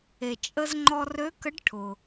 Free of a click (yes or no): no